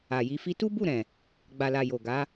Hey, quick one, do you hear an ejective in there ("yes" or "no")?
no